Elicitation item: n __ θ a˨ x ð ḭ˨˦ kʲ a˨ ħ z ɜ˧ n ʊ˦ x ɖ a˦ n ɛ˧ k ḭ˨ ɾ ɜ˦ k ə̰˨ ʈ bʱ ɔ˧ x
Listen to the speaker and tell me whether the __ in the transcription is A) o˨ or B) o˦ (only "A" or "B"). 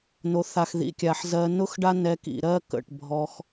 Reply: A